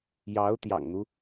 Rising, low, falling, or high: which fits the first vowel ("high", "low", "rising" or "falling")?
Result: rising